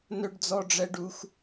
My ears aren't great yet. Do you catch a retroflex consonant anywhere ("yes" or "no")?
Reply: yes